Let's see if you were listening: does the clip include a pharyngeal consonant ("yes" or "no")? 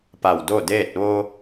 no